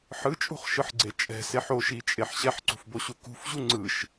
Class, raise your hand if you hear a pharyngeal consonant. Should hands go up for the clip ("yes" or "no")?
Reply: yes